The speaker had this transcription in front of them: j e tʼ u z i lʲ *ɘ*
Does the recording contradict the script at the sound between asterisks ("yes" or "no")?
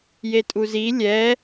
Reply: yes